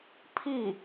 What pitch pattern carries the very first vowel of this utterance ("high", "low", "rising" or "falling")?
falling